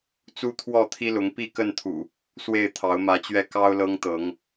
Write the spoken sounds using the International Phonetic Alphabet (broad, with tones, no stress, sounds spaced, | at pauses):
t͡s u˦ t̪ʰ w ɔ˥˨ t̪ʰ i˦ l ʊ˨˦ ŋ p i˥˨ k ə˥˨ n t̪ʰ ṵ˨˩ | s w e˥˨ ɪ̯ t̪ʰ ɑ˨˦ ʊ̯ m ä˨˦ t͡ɕ ɥ ɛ˦ k ɑ˦ ʊ̯ l ɤ˦ ŋ t̪ ɤ˨˦ ŋ